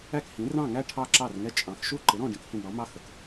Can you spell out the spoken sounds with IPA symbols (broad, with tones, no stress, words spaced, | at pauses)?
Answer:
æ˥˨khĩ˨˥ rɑ̃˥˨ŋæ˥˨ ʈʰɑ˥˨ǁɑ˥˨rŋɛ˥˨ t͡ʃʼɑ̃˨˥x ʃu˥˨ǃɪ˨˥ɾɔ̃˥˨ ɖĩ˥˨khĩ˥˨ɖ ɳɔ˨˥ mɑ˥˨ xə˨˥k